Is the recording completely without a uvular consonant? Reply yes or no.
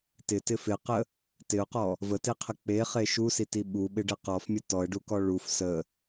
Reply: no